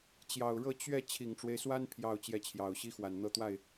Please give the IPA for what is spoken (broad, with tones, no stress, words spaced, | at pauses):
t͡ɕjɑ˨˩ʊ̯ ɻɤ˥˧ t͡ɕɥɛ˥˩ t͡ɕʰi˨˩ŋʈ͡ʂwe˦ɪ̯swa˥n pʰjɑ˥˧ʊ̯t͡ɕjɛ˥˩t͡ɕʰjɑ˨˩ʊ̯ ɕi˥xwa˨˩nn̪ɤ˥˧t̪wa˥˩ɪ̯